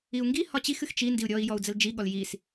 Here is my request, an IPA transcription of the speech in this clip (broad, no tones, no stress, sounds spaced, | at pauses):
i u̯ ŋ ɡ i h ɒ t͡ɕ i x ɨ x t͡ʃ i n d i u̯ ɾʲ ɔ i̯ j ɔ u̯ d͡z ə l d͡ʒ i ɠ ɔ l j i s